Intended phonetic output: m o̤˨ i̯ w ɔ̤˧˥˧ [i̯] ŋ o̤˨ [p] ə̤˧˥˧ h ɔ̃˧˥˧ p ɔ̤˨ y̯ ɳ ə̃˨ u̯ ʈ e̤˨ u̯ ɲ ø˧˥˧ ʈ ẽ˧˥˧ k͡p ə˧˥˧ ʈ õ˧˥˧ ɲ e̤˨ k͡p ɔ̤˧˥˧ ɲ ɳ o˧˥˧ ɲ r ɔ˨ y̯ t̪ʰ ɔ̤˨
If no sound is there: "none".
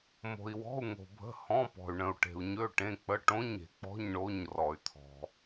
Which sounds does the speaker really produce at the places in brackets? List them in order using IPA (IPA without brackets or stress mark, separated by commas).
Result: u̯, bʱ